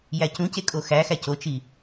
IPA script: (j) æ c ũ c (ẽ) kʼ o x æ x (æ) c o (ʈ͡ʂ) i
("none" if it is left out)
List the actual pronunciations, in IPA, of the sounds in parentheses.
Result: j, e, æ, t͡ʃ

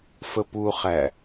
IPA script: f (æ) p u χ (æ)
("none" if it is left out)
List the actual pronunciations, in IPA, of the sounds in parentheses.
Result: ə, æ

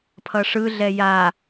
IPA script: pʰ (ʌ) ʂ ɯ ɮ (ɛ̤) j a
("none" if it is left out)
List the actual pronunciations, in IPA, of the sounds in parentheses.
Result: ʌ, ɛ

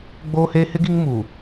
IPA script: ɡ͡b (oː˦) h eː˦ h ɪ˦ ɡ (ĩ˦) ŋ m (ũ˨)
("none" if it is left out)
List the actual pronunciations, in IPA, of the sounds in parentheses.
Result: oː˦, i˦, u˨

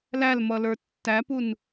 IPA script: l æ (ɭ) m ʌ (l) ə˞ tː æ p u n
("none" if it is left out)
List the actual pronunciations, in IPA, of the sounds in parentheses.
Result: l, l

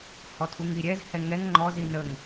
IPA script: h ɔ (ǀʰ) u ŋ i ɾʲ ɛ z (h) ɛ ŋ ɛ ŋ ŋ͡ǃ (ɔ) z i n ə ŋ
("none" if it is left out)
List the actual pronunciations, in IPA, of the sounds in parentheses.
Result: tʰ, h, ɔ

